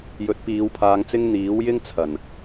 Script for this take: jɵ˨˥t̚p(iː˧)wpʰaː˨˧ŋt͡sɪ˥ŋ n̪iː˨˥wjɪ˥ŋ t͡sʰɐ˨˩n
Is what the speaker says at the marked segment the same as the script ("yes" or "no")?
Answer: no